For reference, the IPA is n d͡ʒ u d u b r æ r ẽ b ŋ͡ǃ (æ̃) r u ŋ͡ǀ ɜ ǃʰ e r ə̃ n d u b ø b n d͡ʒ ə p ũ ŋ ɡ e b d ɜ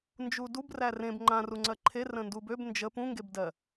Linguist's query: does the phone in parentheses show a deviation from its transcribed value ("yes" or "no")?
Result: yes